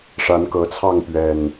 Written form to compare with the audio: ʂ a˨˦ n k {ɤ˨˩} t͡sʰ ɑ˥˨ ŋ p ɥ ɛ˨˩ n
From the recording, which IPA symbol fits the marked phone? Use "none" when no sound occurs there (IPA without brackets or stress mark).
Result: ɤ˨˩